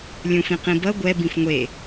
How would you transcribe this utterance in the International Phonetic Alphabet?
lʲũfĩqĩbʌ ɡʷɛ bĩfŋʷe

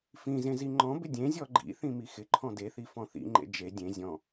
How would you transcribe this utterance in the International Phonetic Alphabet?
fĩzẽ ziŋ͡ǃɔ̃bɪ dʲẽzʲɔ ɡ͡ǃḭ θĩmixɪǃʰɔ̃ deθi fɔ̃θḭŋ͡ǃḛ d͡ʒe dʲẽ zʲɔ̃

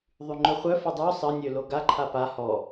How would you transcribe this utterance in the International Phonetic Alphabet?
ðˤyŋ͡ǃœχʷœfo dˤo sˤənʲø loɡaǃʰa pa hɔ

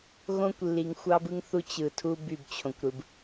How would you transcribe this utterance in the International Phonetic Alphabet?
ɣõ˦kʷlːi˨ŋxʷɑ˦bɯ˦ŋ θu˦t͡ɕɯ˨tʰu˦ by˦˨bt͡ɕʰõ˨kʷɾɯ˨b

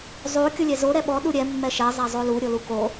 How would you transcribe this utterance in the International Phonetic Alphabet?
zˤo kʲolʲɛzo ɾɛɓɔ ɗuɾʲɛ mːɛʃɛ zˤazˤolu ɾʲoluko

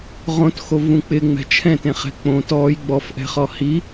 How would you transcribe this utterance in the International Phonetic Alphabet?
ʁõtxovũ k͡pɪŋ͡mɛ̤ t͡ʃʰɛ̃tẽχɛ̤ k͡põ tɔj ɡ͡bɔfʔɛ̤χɔ hi

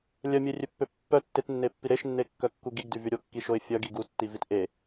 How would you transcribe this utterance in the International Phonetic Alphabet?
lʲœmʲerʲøpːø pːœ tːetnːepːi ɾeʃnːekːœkːu ɡiɡdyvy ɾʲokːiʃoɪ̯ fʲœɡi ɡutːivit ʔe

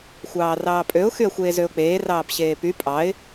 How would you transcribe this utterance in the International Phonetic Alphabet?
xʷɑːrɑːpʼøʊ̯ xyə̯xʷeːzøʊ̯k͡peː rɑːpɕeːpy pʼɑɪ̯

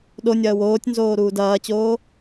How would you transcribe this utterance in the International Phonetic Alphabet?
ɗonʲɐːw oːtʲnzoː ɾuːdɐːt͡ɕoː

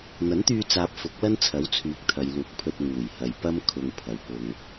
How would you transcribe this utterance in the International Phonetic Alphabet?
n̪ɐ˨˥nt̪yː˧t͡saː˨p̚ fʊ˨˥k̚lɐ˥nt͡sʰɐ˨˥wt͡sʰyː˨˥k̚ t̪ʰɐ˨jluː˨k̚pʰɵ˧t̚ ŋuː˨˩jhɐ˨jpɐ˥m kʰʊ˧ŋpʰɐ˨wpʊ˧ŋ

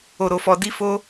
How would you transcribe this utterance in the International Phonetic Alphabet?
o˧ɾo˧fɔ˧ di˦fo˦

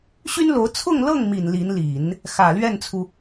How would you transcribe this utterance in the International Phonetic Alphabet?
ɕy˥nlo˧˥ʊ̯ t͡sʰʊ˥˧ŋlɤ˥˩ŋmi˨˩n li˧˥nli˨˩˦n | xä˨˩lɥɛ˥˩nt͡sʰu˩

